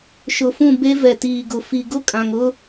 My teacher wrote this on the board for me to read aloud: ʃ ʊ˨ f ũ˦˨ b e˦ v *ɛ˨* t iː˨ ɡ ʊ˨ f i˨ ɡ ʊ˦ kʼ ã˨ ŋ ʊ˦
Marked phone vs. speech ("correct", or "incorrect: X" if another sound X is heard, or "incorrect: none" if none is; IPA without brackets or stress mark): correct